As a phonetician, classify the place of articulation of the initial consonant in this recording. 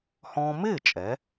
glottal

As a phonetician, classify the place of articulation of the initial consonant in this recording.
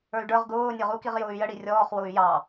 retroflex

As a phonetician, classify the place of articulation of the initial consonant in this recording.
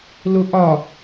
alveolar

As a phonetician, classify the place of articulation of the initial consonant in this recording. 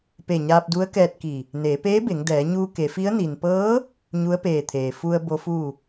labial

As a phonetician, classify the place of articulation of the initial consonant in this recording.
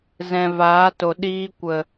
alveolar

